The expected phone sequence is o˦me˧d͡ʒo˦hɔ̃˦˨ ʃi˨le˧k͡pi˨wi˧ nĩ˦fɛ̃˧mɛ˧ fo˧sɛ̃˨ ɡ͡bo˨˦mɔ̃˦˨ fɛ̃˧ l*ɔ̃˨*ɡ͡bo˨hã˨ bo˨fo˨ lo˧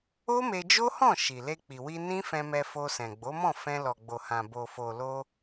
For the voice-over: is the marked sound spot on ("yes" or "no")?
no